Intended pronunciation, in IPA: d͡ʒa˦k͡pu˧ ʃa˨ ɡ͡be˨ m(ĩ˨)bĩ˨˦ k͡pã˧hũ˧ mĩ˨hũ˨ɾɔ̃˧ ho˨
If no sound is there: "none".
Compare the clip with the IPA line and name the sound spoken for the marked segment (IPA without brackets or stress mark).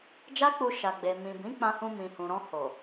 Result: ĩ˨